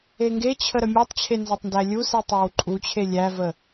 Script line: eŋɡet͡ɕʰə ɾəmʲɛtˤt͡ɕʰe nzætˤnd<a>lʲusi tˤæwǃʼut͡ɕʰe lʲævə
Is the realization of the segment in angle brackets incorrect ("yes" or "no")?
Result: yes